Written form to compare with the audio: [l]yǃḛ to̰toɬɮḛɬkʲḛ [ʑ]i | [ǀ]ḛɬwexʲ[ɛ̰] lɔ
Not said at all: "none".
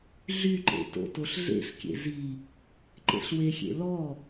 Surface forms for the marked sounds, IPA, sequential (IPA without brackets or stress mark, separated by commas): ɮ, z, ǃ, ḛ